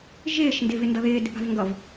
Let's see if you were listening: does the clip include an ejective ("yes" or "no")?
no